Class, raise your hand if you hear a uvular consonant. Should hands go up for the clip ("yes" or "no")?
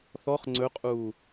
yes